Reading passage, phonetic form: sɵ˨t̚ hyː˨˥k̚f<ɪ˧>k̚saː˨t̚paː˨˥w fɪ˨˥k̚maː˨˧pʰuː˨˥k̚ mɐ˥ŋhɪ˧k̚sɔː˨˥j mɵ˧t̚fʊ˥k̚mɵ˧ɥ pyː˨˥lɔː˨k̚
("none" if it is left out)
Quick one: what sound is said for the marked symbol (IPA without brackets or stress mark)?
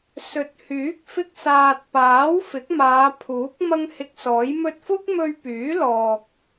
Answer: ɪ˧